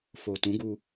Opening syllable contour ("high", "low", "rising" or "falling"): low